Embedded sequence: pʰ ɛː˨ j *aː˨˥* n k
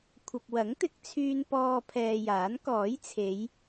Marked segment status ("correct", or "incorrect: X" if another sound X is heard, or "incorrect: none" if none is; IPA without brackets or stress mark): correct